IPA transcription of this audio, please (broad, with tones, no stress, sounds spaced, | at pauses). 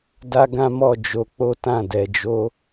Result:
d a˦ ɡ ã˦ m ɔ˦˨ d͡ʒ o˧ k͡p o˦ t ã˦˨ d ɛ˧ d͡ʒ o˦